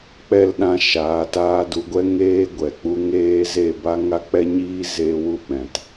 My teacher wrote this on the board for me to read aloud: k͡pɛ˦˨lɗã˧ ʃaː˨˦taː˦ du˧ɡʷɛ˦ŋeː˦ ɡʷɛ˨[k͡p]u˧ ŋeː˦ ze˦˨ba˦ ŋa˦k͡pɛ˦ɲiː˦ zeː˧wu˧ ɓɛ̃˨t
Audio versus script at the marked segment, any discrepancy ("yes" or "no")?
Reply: no